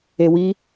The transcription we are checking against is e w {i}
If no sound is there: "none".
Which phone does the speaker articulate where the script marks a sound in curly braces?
i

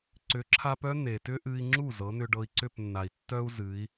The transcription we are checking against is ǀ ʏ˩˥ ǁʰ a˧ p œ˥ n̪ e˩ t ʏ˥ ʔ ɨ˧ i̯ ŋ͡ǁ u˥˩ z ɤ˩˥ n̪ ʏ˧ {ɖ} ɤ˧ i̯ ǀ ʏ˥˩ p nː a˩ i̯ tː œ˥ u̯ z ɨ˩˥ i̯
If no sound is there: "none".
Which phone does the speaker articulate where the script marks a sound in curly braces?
ɖ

